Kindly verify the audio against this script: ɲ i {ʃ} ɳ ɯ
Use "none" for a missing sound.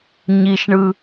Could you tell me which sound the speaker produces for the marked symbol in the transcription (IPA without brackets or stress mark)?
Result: ʃ